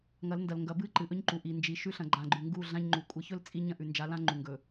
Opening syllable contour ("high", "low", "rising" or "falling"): rising